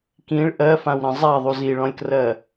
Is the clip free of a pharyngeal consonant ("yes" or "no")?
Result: yes